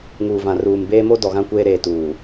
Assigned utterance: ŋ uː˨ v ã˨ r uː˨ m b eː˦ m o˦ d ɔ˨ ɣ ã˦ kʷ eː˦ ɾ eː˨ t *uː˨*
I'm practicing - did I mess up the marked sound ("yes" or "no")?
no